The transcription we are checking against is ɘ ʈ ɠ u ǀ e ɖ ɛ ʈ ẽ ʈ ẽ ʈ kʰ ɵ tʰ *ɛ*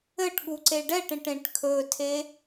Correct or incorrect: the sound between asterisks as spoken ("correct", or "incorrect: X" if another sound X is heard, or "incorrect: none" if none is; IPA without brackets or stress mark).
incorrect: e